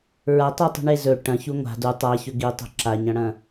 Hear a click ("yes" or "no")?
yes